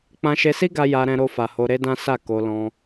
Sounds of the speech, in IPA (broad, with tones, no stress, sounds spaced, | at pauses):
k͡p ã˧ ʃ e˧ s i˦ ɡ a˧ j a˧ ɾ ɛ̃˧ ɾ o˧ f a˨ h o˧ ɾ e˦ d ã˦ s a˦˨ k o˧ l ɔ̃˧